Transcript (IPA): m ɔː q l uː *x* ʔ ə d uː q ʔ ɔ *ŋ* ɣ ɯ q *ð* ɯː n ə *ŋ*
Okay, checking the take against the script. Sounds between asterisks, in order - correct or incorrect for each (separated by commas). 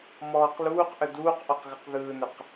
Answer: incorrect, incorrect, correct, incorrect